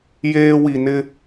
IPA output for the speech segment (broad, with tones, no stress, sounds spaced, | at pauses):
j eː˦ w i˨ n ɪ˦